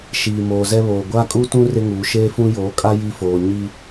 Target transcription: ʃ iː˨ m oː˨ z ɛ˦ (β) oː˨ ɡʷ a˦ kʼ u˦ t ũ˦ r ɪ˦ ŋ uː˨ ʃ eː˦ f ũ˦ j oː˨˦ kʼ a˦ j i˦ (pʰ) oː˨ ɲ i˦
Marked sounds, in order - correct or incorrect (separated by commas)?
correct, incorrect